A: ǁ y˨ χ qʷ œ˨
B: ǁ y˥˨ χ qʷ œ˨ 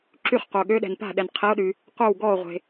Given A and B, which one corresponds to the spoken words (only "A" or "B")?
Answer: B